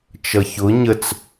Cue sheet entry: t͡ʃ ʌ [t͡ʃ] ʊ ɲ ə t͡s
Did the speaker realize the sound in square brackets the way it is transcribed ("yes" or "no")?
no